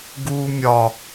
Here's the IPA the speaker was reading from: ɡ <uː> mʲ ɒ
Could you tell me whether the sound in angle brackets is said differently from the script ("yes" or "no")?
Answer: no